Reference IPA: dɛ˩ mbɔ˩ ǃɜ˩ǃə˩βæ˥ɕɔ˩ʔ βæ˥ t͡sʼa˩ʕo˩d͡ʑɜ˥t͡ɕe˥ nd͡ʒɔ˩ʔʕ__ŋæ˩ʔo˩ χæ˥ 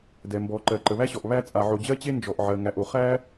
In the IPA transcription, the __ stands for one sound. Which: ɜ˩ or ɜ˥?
ɜ˩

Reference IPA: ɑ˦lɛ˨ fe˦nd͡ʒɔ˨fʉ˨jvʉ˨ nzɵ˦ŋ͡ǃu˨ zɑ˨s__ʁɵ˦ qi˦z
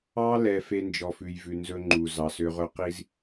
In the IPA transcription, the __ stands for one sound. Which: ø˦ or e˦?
ø˦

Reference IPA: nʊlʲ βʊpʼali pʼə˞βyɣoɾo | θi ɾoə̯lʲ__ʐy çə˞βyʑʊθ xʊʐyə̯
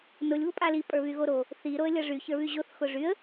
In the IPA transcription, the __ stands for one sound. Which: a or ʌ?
ʌ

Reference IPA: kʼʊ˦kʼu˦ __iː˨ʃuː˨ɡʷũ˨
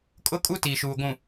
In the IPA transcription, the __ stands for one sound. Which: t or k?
t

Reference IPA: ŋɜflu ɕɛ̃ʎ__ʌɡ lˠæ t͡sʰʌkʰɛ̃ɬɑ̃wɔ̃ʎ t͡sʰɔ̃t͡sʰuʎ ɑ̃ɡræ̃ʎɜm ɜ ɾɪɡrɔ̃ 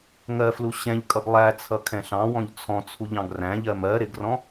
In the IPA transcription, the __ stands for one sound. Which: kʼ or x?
kʼ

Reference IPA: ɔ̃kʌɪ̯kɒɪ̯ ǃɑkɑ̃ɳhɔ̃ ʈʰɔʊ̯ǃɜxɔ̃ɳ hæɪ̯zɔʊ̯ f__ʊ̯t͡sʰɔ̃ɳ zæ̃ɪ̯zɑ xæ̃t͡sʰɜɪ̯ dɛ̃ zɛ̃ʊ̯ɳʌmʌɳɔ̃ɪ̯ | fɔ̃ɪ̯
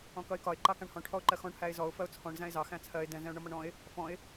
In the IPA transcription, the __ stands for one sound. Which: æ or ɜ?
ɜ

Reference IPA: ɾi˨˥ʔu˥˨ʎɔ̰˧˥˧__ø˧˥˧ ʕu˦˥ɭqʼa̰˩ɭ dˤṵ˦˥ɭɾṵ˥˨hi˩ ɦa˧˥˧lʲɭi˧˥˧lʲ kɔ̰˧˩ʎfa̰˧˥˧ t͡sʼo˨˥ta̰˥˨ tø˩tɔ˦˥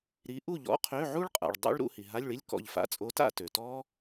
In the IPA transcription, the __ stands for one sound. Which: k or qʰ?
qʰ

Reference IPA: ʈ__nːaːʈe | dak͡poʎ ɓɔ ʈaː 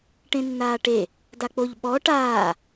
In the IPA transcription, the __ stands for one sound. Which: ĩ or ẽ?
ẽ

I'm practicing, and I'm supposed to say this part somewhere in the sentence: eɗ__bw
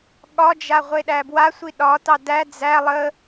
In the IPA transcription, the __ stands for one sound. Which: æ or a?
æ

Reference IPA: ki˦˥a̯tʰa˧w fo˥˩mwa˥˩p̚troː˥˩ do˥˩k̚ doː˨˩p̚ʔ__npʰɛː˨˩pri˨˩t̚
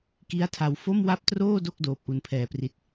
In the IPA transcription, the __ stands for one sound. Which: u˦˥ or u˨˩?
u˨˩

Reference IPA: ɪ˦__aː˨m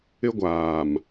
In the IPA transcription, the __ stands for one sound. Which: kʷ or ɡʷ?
ɡʷ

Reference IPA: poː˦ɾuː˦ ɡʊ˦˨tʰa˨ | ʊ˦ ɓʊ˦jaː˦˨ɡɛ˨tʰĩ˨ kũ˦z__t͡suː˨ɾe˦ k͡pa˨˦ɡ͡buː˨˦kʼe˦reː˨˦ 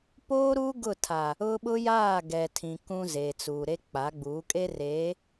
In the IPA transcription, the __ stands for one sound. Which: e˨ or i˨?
e˨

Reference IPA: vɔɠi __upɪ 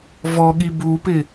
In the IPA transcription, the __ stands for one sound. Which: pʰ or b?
b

